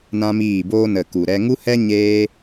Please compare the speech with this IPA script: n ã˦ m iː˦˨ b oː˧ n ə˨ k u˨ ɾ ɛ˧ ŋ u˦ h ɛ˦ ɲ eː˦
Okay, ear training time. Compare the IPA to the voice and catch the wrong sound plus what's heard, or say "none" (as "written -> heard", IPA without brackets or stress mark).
none